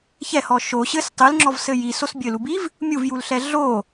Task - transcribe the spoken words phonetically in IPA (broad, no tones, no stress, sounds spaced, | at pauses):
ç ɛ h ɔ ʃ o ɕ ɘ s tˤ ɨ l ŋ͡ǁ ɔ v s ɘ j i s o s bʲ ɘ l u b i v | mʲ u v j u l ɬ ɛ ɮ o